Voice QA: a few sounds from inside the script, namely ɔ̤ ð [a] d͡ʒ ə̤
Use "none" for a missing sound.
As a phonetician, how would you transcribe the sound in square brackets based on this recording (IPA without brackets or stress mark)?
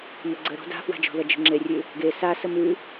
ɐ